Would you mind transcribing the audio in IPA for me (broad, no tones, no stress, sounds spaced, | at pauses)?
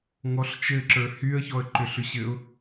ŋ ɔ ɬ t͡ʃ ɘ ǁ ə˞ h y ə̯ ç ɔ ə̯ ǃ ʏ ɬ ʏ ɕ ɘ ʊ̯